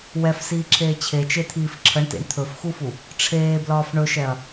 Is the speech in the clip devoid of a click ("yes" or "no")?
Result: no